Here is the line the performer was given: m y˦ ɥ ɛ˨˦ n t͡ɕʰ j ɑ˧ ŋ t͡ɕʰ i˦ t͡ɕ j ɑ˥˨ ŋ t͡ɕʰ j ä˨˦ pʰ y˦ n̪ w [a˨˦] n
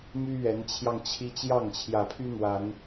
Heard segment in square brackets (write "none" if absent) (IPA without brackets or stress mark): a˨˦